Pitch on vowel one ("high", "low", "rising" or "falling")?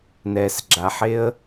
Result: low